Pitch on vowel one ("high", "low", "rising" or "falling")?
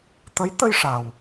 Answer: rising